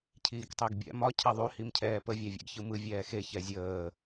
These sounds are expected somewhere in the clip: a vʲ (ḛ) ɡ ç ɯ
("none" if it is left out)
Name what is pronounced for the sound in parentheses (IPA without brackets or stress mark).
ḛ